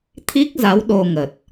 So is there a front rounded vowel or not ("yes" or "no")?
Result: no